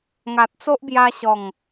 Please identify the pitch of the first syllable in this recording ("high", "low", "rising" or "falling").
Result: low